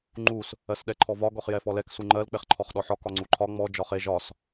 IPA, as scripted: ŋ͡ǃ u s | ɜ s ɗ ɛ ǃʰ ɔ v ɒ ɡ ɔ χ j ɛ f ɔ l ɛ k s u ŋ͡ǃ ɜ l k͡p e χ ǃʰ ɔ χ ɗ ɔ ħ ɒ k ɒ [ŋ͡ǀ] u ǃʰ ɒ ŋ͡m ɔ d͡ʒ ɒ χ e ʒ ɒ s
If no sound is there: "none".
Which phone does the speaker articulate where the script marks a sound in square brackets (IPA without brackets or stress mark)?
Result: ŋ͡ǀ